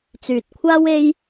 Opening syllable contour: low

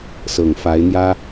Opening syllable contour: low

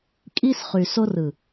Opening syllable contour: high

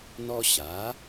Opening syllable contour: high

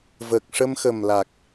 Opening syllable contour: low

